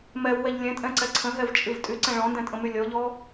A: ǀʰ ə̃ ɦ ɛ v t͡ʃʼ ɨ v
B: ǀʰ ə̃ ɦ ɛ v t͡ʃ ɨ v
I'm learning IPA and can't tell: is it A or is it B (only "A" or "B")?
A